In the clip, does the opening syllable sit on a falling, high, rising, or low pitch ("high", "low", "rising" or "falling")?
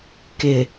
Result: low